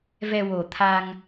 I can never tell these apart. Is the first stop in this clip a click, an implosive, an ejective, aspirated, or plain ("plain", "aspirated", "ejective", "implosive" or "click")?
aspirated